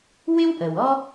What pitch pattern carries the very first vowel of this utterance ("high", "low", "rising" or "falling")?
high